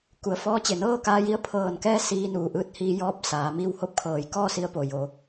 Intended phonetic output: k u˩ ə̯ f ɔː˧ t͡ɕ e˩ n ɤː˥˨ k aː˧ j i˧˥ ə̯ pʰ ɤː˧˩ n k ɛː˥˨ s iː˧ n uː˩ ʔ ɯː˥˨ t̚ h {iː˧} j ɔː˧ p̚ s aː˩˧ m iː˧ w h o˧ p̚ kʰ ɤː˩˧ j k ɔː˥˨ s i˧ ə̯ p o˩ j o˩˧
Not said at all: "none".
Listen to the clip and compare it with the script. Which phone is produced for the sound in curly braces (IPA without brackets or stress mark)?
iː˧